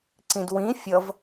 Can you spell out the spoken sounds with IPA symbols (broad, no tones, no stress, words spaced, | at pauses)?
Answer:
ǀĩdwĩ fʲʌv